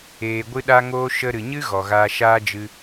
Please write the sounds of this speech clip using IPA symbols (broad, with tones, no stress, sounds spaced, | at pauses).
eː˨ ɡʷ ɨ˧ ɗ a˧ ŋ oː˧ ʃ ə˧ ɾ ɨ˨ ɲ ɨ˦ ɣ ɔ˨ ɣ aː˧ ʃ aː˦ d͡ʒ ɨ˧